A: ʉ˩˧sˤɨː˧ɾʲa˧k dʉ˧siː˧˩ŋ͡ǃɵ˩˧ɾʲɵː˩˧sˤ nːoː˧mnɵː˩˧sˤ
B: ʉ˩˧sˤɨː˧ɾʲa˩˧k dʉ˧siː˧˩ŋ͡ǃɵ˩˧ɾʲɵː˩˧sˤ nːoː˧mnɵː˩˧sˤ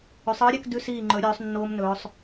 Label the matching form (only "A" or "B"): A